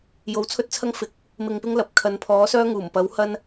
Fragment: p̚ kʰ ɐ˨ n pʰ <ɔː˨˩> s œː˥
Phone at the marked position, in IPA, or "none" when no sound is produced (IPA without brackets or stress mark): ɔː˨˥